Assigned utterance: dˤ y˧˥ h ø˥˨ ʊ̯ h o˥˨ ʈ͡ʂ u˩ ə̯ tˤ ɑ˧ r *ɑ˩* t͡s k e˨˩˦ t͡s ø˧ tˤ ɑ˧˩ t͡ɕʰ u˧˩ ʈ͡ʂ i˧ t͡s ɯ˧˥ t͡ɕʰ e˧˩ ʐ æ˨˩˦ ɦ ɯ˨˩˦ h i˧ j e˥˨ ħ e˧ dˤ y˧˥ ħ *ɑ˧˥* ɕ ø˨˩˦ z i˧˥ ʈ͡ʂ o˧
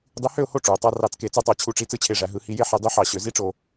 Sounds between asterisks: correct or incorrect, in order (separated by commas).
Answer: incorrect, incorrect